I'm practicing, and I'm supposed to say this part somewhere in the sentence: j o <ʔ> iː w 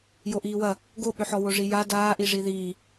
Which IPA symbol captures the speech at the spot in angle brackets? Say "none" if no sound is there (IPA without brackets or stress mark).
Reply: ʔ